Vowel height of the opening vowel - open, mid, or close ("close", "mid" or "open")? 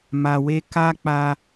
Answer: open